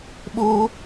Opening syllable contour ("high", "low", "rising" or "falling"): high